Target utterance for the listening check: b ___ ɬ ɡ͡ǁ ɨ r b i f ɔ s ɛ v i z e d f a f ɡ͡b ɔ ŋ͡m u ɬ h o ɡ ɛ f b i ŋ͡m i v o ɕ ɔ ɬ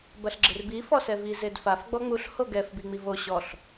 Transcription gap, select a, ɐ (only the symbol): ɐ